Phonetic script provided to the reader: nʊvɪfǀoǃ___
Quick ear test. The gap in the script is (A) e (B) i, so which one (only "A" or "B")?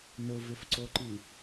B